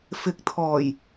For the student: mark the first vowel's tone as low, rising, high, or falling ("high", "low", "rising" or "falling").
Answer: rising